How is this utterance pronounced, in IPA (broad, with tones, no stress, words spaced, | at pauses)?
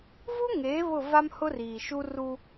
vu˦ŋeː˨˦ βʊ˦˨va˦mhʊ˦riː˨ ʃu˦ru˦